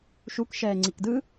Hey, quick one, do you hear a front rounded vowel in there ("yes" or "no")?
no